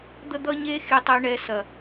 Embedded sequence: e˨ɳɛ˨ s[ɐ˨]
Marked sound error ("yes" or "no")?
no